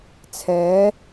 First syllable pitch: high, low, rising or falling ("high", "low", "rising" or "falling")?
rising